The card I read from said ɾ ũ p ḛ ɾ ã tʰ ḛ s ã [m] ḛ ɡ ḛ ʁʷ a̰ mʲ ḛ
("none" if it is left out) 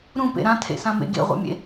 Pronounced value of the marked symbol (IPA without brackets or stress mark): m